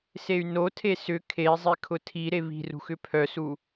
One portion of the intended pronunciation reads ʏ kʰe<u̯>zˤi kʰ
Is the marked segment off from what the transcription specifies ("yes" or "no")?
yes